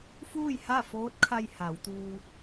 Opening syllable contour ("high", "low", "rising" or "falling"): falling